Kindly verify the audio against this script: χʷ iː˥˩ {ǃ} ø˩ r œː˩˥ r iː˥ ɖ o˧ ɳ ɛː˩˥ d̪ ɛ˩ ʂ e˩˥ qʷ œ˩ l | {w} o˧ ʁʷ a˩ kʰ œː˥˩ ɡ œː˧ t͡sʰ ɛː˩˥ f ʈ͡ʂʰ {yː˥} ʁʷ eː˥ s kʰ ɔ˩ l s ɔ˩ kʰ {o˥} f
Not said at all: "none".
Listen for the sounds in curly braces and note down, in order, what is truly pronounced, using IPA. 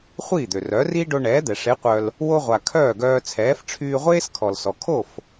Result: d̪, w, yː˧, o˥˩

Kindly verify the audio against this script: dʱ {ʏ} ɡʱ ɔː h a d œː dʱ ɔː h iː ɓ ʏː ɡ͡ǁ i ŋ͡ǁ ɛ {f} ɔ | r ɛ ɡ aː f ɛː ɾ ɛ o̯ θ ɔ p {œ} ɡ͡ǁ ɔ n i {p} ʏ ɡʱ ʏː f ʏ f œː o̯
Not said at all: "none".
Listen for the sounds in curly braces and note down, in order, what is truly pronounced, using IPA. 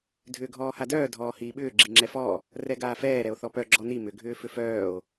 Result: ʏː, f, œ, m

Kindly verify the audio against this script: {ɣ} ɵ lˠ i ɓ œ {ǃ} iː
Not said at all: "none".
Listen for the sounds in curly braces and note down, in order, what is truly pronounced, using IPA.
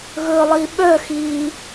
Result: ɣ, x

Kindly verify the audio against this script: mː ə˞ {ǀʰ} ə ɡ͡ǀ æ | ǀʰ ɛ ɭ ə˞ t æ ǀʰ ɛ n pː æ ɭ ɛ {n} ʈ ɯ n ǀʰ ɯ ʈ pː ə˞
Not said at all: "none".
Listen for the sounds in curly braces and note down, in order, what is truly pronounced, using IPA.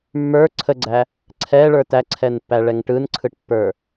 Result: ǀʰ, ŋ

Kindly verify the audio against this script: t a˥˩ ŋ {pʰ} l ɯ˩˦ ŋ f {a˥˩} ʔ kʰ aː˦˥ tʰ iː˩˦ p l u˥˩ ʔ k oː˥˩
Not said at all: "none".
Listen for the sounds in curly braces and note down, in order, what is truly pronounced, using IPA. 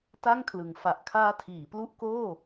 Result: kʰ, a˨˩

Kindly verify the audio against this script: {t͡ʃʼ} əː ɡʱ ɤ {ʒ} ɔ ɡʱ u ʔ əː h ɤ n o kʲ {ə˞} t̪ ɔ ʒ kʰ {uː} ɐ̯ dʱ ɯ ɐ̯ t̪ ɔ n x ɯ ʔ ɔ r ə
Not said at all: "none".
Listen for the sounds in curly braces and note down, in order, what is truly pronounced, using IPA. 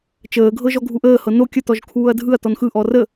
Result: t͡ʃ, ʒ, ə, uː

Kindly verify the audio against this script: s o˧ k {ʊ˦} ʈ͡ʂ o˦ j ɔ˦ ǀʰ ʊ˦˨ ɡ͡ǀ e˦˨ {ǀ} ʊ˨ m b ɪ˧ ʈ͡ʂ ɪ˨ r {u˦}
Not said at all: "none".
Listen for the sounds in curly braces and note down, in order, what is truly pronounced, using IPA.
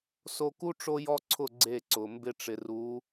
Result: u˦, ǀ, u˨˦

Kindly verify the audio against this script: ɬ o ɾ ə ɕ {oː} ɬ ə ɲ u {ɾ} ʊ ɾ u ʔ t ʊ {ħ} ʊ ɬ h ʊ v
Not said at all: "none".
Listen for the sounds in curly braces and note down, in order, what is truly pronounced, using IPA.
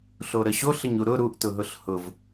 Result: o, ɾ, ɦ

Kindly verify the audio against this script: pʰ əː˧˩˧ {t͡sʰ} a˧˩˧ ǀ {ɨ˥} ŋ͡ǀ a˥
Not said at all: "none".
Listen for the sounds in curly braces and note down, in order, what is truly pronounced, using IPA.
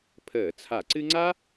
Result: t͡sʰ, ɨ˥

